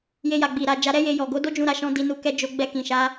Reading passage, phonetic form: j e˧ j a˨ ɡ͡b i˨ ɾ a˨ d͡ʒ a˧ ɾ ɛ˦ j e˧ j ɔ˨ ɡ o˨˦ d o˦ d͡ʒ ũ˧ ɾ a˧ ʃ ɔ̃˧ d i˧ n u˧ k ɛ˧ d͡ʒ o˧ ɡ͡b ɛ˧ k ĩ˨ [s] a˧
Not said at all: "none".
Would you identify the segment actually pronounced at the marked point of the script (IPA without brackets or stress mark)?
ʃ